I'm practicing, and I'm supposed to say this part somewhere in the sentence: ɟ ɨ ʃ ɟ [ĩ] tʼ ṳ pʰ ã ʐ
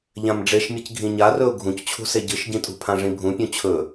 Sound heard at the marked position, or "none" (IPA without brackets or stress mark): ĩ